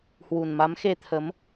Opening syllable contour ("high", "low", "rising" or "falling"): low